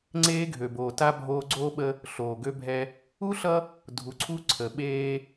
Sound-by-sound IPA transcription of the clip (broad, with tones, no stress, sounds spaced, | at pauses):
ŋ͡ǀ eː˦ ɡʱ ø˨ b oː˨ t a˦ bʱ oː˦ ɡ͡ǀ oː˦ ɓ ə˦ | ɬ oː˨ ɡ ø˦ bʱ ɛ˦ | u˦ ɬ ʌ˦ | dʱ u˨ ǀʰ u˦ ǀʰ ə˨ ɓ eː˦